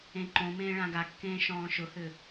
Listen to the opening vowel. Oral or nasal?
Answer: nasal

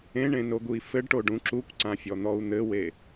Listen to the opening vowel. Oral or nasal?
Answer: nasal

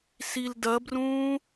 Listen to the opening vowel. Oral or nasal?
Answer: oral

